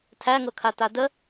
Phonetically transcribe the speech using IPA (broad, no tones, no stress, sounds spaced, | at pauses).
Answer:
tʰ æ ŋ ɤ kʰ a t a d ə